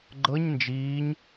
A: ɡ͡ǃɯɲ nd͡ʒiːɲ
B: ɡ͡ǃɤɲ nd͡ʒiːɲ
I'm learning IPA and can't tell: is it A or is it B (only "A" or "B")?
B